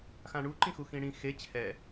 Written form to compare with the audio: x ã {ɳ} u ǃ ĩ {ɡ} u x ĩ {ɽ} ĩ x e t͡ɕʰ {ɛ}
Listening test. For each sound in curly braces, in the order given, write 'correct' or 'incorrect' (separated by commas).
correct, incorrect, correct, correct